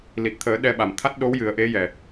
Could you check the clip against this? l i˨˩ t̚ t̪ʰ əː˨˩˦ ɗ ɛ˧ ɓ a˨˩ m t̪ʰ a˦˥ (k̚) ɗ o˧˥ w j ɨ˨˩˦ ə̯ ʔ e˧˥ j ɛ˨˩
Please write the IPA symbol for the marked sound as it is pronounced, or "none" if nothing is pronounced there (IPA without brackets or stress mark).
t̚